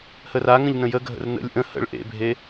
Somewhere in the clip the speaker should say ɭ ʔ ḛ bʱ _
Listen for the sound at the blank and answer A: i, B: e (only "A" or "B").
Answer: B